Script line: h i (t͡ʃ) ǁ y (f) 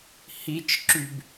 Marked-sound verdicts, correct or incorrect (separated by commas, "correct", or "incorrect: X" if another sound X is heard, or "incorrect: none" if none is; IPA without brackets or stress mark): correct, incorrect: b